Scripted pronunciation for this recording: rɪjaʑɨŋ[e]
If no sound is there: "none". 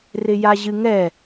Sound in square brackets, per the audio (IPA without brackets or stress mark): ɛ